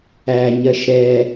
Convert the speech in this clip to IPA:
æ ɲ ɜ ʃ ɾ ɛ

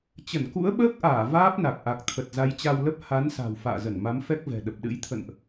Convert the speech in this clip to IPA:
t͡ɕ ə˧˩ n k ṵ˧˥ ə̯ ɓ əː˦˥ k̚ ʔ aː˧˩ v aː˦˥ p̚ n a˨˩ k̚ ʔ a˨˩ k̚ t̪ʰ ə˨˩ t̚ z a˨˦ j t͡ɕ a˧ w l ə˦˥ p̚ h a˨˦ n s a̤˨˩ w f a̰ː˧˨ z ə˧˩ n m a˨˦ m f ɛ˦˥ k̚ v ɛ̤˨˩ ɗ ə˨˩ p̚ ɗ ɨ̰˧˥ j t̪ʰ ə̰˧˨ n ʔ

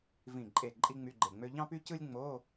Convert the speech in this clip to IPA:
v ĩ˧˩ ǃʼ e˧˩ ǃʼ i˥ ŋ͡m y˧˥˧ ɡ͡ǃ e˧˩ ŋ͡m ø˥ ʎ ɑ̃˥ p y˥ c ɯ˥ lʲ ŋ͡m o˧˥˧

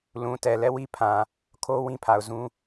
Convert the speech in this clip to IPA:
l ũ˨ t ɛ˨ l ɛ˦˨ w i˦ pʰ ã˨ | kʰ o˦ w ĩ˦ pʰ a˨ ʊ̯ z ũ˦

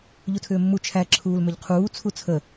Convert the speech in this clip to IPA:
ʎ u tʰ ʏː mː u t͡ʃʰ æ ǁʰ uː l m ʏ ʎ qʰ uː t͡sʰ u t͡sʰ ə

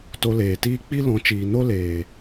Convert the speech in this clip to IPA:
t o˧ l eː˨ t iː˦ k͡p i˦ l ɔ̃˨˦ t͡ʃ iː˨ n o˦ l eː˨

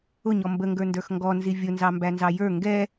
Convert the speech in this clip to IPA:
ʊ ɲ ɔ m b ə ŋ ɡ ə˞ n d ə˞ x ŋ ɡ ɔ n z i vʲ ʊ n z ɑ m b æ n z ɑ j ə˞ ŋ ɡ ɛ

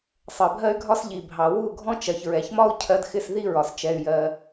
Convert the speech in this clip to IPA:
sˤ ɜ˨ bʱ ɜ˦ y̯ ɡʱ ɒ˦ s ʎ i˨ bʱ ɑ˨ w u˦˨ ɡʱ ɔ̃˦ t͡ʃ ɜ˨ ç ɹ ɛ˨ ç m ɒ˦ u̯ cʰ ɜ˦ d x ɪ˦ s ð i˦ ɹ ɒ˨ s t͡ʃ ɛ˧ y̯ j ɜ˧

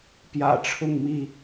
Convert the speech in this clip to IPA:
p j ä̰˨˩ ʈ͡ʂʰ ʊ˥˨ ŋ m i˥˨

